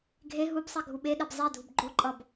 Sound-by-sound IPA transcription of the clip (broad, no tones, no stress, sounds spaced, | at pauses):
ɡʱ e ɦ u b sˤ i ɡʱ u ɓ e ɗ ɛ b zˤ ɛ dʱ u b ɡ͡ǃ o ǃʼ ʌ b